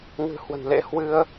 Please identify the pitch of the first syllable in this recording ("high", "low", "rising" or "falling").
low